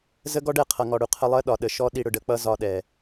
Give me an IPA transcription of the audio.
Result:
z ə˦ ɡ ɔ˦ ɖ ɛ˧ qʰ ʌ˨ ŋ ɔ˨ ɽ u˨ qʰ ə˧ lˠ ɜ˦ ɗ ɒ˨ ɗ ə˨ ʃ ɔ˦ ɗ i˧ ɽ ʊ˧ ɖ ə˨˦ k͡p ʌ˦ z ɒ˧ ɗ ɛ˨

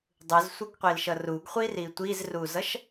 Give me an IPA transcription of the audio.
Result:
dˤ ɯ z sʷ ʌ ɡ qʷ i l ʃ ʌ r u ɡ χʷ i r i tʷ i z r u z ʌ ʃ

